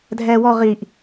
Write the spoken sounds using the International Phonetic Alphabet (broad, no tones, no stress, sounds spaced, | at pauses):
dʱ ɛː w ɔ ʁ i ʔ